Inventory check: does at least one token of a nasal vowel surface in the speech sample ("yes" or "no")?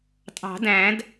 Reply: yes